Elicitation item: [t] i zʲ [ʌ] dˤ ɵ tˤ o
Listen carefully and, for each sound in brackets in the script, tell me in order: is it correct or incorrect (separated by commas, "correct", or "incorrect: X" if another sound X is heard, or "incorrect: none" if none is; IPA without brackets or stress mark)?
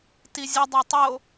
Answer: correct, incorrect: ə